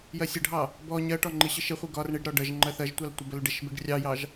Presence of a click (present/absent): present